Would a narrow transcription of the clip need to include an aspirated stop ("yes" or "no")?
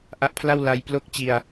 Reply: yes